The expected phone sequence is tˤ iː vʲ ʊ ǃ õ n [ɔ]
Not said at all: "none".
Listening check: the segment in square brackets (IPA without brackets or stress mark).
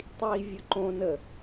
ə